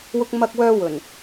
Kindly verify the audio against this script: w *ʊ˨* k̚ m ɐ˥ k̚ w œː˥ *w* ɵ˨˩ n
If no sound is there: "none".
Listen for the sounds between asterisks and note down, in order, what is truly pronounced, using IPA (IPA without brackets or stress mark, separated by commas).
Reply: ʊ˥, w